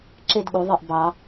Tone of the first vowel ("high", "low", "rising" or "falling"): falling